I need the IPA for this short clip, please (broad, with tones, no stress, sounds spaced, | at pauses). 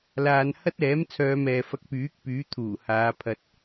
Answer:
l aː˨ n h ɐ˥ t̚ ɛː˨˥ m t͡sʰ œː˨˧ m ɛː˨ f ɐ˧ k̚ p yː˨˥ k̚ p yː˨˥ t̪ʰ uː˨˩ h aː˨˧ pʰ ɐ˨ t̚